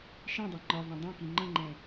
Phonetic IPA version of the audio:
ʃ ĩ dˤ ɛ ŋ͡ǃ ɒ v œ̃ dˤ œ̃ k i ŋ͡ǃ ə̃ ŋ͡ǃ ɛ̃

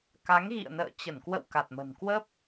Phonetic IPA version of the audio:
k a˨˦ ŋ ɣ ḭ˧˨ ə̯ n ə̰ː˧˨ t͡ɕ ə˧˩ n k w ə̰˧˨ w k a˨˩ t̚ m ə̤˨˩ n k w ə˦˥ p̚

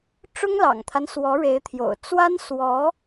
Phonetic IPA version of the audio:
ʈ͡ʂ ʊ˥ ŋ l ɑ̰˨˩ ŋ t̪ʰ a˦ n s w ɔ˧˥ ɻ e˧˥ ɪ̯ t̪ʰ j o̰˨˩ ʊ̯ t͡s w a˥ n s w ɔ˧˥

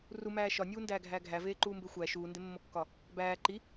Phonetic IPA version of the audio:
r u m æː ʃ ɒ nʲ uː n d æː ɡʱ æː ɡʱ æ v eː ǃ uː m b e xʷ æ ʃ uː n d e mː o kː ɒ | b æː ǃ i

